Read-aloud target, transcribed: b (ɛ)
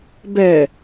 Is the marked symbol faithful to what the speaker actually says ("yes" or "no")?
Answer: yes